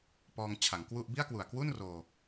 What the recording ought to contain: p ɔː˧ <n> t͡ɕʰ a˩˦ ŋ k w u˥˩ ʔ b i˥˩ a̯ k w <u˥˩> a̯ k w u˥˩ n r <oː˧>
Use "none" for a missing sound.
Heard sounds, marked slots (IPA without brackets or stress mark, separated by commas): ŋ, u˨˩, oː˧